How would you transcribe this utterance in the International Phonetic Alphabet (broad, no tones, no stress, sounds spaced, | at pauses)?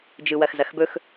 d͡ʒ ɯ w ɐ x z ɐ x b ɵ x